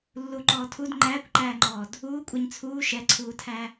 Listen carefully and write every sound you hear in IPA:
lː u ǃ ɔː tʰ u d ŋ͡ǃ æː kʷ ǃ æː ŋ͡ǃ ɔː d | uː kʷʼ ɛ ɲ t͡sʰ uː ʃ ɛ ǀʰ uː tʰ æ

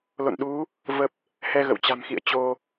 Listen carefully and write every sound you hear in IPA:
l o̰˧˨ n ɗ u˨˦ | v ə˦˥ p̚ | h ɛ˧ ɣ ə̰˧˨ w t͡ɕ a̤˨˩ m x ḭ˧˨ ə̯ t͡ɕ o˧

